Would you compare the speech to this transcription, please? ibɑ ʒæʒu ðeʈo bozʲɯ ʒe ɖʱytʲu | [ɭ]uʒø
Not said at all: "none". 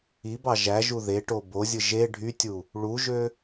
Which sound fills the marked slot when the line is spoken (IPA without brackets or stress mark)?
ɭ